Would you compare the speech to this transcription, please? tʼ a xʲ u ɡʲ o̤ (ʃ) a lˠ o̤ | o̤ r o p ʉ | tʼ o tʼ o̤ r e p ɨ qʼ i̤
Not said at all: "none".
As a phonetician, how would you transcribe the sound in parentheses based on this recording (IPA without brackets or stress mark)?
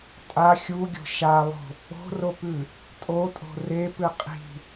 ʃ